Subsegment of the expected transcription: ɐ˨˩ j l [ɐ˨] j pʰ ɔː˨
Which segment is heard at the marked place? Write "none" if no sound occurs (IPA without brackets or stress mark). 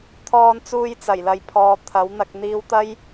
ɐ˨